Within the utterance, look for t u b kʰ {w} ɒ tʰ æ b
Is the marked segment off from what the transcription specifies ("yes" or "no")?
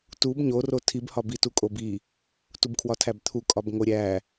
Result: no